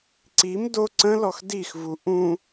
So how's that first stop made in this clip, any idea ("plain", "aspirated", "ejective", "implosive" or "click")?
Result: click